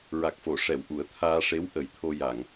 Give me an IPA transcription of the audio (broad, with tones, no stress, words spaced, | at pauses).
ɹa˨˩k̚fo˨˩˨ ʂɛ˨˩˨w ʔu˨˩˦ə̯t̪ʰaː˧ ʂe˧˥w ʔə˨˩˦jt̪ʰo˧ja˨˩˨ŋ